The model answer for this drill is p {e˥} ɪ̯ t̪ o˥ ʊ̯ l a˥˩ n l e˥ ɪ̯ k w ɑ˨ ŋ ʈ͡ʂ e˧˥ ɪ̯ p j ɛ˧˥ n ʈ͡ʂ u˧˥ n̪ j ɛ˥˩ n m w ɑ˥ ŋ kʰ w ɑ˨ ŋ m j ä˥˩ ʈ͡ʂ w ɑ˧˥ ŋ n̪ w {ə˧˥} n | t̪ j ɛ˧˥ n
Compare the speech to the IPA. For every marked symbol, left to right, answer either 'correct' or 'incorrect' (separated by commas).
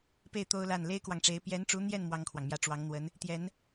incorrect, correct